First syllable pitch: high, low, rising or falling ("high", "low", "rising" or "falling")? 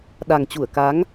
low